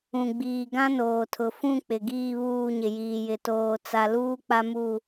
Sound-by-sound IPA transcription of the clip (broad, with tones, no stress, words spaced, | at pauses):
ũ˨ɡ͡biː˨ɡã˦ noː˨tʰʊ˨fũ˦˨ k͡pɪ˨ɡiː˦˨βuː˦˨ɲɪ˨ jiː˨jɪ˨ toː˨ t͡sa˨luː˦ k͡pa˦mu˦˨